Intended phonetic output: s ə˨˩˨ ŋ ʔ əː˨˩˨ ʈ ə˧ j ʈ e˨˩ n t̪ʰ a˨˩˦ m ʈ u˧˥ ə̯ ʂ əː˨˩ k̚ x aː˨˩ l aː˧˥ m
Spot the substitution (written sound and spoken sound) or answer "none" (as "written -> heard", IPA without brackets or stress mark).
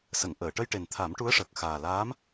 none